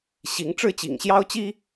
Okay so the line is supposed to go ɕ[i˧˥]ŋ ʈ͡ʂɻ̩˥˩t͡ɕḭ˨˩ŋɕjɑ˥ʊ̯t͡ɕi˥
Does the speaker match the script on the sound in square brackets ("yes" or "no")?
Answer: yes